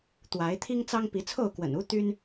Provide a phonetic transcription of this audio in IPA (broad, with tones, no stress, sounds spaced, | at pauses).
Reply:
t̪ w a˨˦ ɪ̯ t̪ʰ i˦ ŋ t͡s ɑ˦ ŋ p i˨˦ t͡sʰ o˥˨ ʊ̯ k w ə̰˨˩ n u˦ t̪ y˦ n